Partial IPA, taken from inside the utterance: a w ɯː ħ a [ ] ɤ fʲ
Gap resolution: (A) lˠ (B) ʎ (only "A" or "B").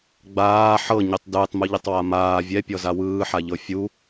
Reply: B